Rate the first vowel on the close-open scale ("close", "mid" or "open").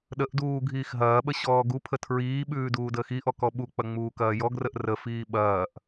mid